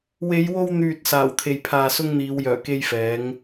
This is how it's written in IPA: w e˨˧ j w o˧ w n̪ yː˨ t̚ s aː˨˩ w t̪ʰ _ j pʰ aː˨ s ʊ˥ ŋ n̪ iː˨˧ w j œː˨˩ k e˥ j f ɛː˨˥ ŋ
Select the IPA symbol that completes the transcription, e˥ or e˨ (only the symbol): e˨